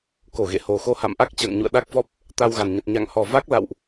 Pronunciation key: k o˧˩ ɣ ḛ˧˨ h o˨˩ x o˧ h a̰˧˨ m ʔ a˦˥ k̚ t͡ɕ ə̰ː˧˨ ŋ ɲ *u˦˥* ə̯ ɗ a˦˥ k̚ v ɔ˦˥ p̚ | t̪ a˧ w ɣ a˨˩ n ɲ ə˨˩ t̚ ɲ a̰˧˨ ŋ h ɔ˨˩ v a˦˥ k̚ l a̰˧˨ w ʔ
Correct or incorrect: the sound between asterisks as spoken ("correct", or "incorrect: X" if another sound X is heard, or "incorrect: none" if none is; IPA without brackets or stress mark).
incorrect: ṵ˧˨